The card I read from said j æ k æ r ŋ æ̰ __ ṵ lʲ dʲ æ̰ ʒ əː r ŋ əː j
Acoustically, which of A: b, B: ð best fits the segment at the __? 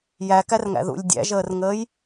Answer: B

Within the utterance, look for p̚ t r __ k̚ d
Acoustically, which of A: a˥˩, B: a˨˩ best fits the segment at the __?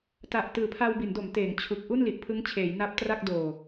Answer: A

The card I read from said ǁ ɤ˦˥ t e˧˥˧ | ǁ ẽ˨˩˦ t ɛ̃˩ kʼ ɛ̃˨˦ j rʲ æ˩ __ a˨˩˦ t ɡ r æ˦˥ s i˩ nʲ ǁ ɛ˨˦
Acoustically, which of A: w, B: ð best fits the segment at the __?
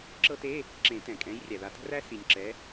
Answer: B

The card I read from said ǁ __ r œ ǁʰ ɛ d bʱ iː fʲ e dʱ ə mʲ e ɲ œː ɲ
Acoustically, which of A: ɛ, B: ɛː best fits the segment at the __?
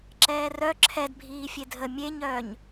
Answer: B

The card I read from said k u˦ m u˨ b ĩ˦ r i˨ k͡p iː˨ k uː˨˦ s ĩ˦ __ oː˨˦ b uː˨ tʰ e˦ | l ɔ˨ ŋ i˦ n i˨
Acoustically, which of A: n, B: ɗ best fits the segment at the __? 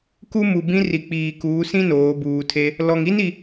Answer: A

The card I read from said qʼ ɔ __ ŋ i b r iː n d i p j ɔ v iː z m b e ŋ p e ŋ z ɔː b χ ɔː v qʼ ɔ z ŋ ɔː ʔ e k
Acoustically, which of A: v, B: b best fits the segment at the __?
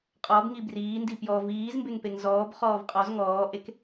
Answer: B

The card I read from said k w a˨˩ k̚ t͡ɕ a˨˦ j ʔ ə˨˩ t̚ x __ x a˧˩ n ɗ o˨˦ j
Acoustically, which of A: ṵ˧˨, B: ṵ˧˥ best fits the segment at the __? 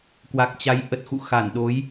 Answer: A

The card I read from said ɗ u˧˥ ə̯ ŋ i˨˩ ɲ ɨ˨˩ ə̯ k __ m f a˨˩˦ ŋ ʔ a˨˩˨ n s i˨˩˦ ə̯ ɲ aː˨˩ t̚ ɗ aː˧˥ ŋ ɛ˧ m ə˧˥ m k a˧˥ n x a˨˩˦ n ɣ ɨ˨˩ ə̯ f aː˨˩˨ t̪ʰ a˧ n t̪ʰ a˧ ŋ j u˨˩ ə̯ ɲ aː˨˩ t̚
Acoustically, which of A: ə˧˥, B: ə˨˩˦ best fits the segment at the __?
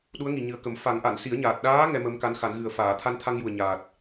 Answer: B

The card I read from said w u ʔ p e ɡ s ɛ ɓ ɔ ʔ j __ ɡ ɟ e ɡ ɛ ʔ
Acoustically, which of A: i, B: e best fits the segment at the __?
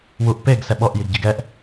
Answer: A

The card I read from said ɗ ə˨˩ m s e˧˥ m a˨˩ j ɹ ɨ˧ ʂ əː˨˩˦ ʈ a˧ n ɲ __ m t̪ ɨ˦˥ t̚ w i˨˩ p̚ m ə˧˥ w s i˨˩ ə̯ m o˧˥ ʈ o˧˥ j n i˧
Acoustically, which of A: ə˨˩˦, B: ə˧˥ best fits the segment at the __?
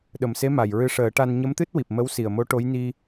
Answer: B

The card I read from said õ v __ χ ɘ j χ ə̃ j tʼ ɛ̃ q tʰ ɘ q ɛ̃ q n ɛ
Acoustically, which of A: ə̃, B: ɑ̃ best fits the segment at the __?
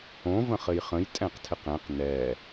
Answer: A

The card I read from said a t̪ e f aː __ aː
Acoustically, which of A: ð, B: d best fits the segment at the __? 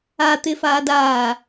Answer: B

